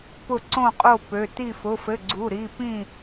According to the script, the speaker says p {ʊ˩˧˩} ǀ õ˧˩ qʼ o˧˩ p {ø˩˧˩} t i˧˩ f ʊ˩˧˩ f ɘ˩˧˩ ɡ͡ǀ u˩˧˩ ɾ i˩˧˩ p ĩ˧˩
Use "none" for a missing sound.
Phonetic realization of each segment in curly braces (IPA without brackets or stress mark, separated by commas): ʊ˧˩, ø˩˧˩